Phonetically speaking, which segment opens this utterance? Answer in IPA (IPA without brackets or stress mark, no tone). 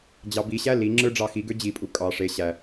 d͡ʑ